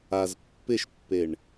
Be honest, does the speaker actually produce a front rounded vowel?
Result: no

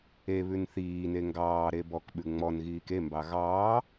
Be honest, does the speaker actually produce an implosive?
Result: yes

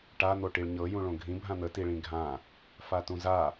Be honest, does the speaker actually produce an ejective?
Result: no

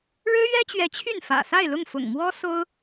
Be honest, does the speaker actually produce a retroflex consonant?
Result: yes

